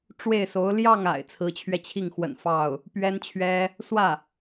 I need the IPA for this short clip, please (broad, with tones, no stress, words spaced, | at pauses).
ʈ͡ʂwe˥˩ɪ̯so˧˥ʊ̯ ljɑ˥˩ŋa̰˨˩ɪ̯ t͡sʰɹ̩˧˥t͡ɕʰɥɛ˧t͡ɕʰi˥˩ŋxwə̰˨˩n fɑ˥˩ʊ̯ | pɥɛ˥nt͡ɕʰɥɛ˥ | swä˥˩